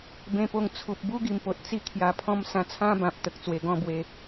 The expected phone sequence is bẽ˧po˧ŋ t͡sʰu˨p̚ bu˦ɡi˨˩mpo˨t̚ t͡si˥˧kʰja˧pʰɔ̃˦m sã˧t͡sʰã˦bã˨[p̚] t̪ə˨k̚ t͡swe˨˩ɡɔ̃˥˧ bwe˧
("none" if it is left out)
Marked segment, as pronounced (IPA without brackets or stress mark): p̚